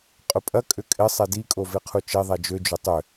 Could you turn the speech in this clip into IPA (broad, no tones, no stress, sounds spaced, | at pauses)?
qʼ ʊ pʼ ɐ kʼ ʏ kʼ ɪ sˤ ɛ d i kʼ o v e qʰ u t͡ʃ e ðˤ ɛ d͡ʒ ø d͡ʒ ʏ tˤ ʏ